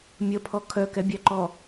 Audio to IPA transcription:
mʲ ə pʰ ɔ kʰ œ k ɛ bʲ æ ǃ ɔ

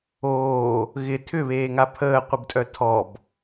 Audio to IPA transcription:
oː | ɣ ɪ tʰ ʏ β eː ŋ a pʰ əː qʷ ɪ b tʼ œ tʰ ɔ b

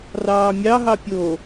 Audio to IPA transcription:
r ɑː mʲ ɑ ɦ ɑ pʲ o

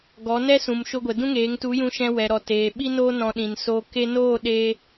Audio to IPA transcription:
ɡ ɔ˨˦ n ɛ˦ s ũ˨ m ʃ o˧ ɡʷ ɛ˨ d ũ˦ ŋ eː˨˦ ŋ t u˨˦ j ũ˧ ʃ ɛ̃˧ w ɛ˨ ɾ ɔ˨ t eː˨ ɓ i˦ n oː˦ n ɔ̃˧ ɗ ĩ˨ n s oː˧ k e˧ n oː˦˨ ɗ eː˦

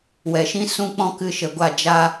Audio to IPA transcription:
w ɛ˨ ʃ ĩ˦ s ũ˦ k͡p ɔ̃˦ k ɨ˧ ʃ ə˨ ɡʷ a˦˨ d͡ʒ a˦

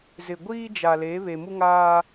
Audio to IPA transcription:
z ɪ˨ ɡʷ iː˦ d͡ʒ a˨ l e˨˦ β e˨ m u˦ ŋ aː˦

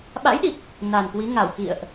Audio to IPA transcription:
ɓ a̰˧˥ j ɗ i˨˩ k̚ | n a˨˩ n k w i˨˦ ŋ a˧˩ w k ḭ˧˨ ə̯ ʔ

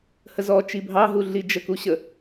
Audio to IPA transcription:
h ə z ɔ t͡ʃ i bʱ ɑ ɦ u ɮ i d͡ʒ ə k u ɕ ə

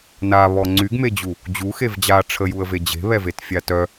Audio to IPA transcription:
n a β ɔ ŋ͡ǀ y ɡ m e d͡ʑ u | d͡ʑ u x e v d͡ʑ a ʈ͡ʂʰ ə j u ə̯ v e d͡ʑ e̤ β ɛ v e t fʲ a t œ

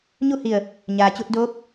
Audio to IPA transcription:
ɲ u˥˨ h i˧˩ ə̯ | ɲ aː˩ t͡ɕ u˧ t̚ d oː˧˥ p̚

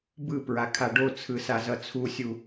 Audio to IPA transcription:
b ɯ p ɹ a kʰ a ɖ o t͡sʰ ɯ s a z ʌ t͡sʰ u sʲ u

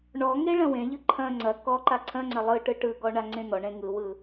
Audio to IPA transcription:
ɳ ɔ ŋ e ɭ ɐ̃ w ẽ ʎ ɯ ǃʰ ɐ̃ ŋ͡ǀ ɐ k ɔ ǃ a ǀʰ ɐ̃ ŋ͡ǀ ɐ lˠ ɯ ʈ ɯ ʈ ɯ ɡ ɔ ɳ a ŋ͡ǀ ẽ n̪ ɔ ɳ ẽ ŋ ɯ w ɯ

